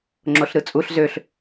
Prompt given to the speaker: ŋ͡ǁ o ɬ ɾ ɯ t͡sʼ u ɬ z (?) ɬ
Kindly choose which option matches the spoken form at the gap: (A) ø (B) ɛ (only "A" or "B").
A